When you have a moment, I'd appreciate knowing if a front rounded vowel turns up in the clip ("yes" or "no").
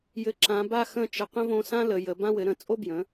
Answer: no